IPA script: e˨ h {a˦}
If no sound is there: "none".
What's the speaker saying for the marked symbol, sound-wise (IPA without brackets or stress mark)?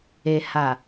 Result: a˨